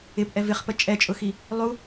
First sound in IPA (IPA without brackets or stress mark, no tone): ɪ